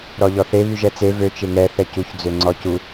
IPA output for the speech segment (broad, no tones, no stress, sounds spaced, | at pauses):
ɾ ɔ ʎ ɔ θ e β y ʒ ɛ t͡s e v ø t͡ʃ e ŋ ɛ θ ɛ c u ç d͡z ø ŋ͡ǀ ɔ c u